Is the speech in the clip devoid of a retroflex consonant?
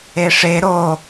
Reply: no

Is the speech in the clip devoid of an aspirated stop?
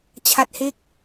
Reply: no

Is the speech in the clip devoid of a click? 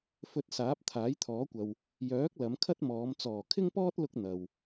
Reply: yes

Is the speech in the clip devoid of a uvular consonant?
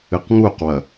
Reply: no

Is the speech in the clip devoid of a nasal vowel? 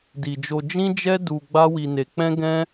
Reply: no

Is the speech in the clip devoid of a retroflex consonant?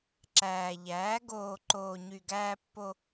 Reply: yes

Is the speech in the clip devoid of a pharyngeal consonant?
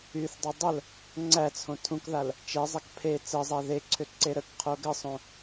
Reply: yes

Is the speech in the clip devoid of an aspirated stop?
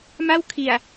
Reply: no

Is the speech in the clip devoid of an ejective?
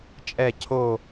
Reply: no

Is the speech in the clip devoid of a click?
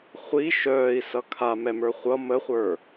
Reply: yes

